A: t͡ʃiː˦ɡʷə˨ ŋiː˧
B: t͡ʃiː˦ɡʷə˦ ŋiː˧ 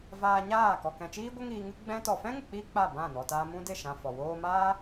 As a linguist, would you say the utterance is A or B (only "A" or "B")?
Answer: B